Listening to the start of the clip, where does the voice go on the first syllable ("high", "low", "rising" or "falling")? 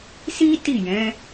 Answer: high